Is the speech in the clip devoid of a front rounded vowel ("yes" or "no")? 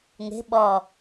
yes